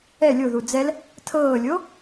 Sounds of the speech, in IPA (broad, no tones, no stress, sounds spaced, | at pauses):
ɛ lʲ o ð u d͡z ɛ l | tʰ ɤː lʲ o